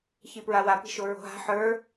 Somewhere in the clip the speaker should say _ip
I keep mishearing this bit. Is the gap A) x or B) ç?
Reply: B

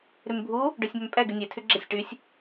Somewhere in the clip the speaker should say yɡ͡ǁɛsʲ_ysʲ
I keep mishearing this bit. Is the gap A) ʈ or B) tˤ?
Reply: A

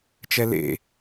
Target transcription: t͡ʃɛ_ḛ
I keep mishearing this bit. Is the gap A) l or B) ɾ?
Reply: A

